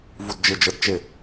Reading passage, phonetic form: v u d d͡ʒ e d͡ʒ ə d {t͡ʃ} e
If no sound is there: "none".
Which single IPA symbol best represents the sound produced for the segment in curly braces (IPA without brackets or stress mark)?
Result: t͡ʃ